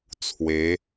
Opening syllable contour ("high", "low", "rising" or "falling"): rising